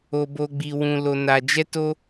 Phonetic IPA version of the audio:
o˧ b o˧ ɡ͡b i˧ w ũ˧ l o˧ n a˧ d͡ʒ ɛ˦ t o˦

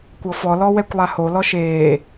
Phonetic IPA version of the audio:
kʷ ɤ f ɔ l ɔ w ɛ kʷ lˠ a h o l ɔ ʃ eː

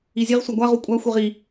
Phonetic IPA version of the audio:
i zʲ e ʁ sʷ a ɡʷ a ʁ u kʷʼ a xʷ e ʁ i

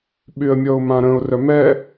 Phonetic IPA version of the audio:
ɓ y ə̯ mʲ ɔ ʊ̯ m ã ɾ ə̃ ʊ̯ r œ m ɛ

